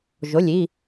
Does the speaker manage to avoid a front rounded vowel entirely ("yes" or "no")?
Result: yes